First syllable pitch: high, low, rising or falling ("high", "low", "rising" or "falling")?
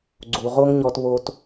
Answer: low